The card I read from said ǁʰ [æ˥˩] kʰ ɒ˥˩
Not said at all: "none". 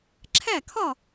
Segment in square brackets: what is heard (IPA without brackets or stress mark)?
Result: æ˥˩